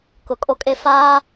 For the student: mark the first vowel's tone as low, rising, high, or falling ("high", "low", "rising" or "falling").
low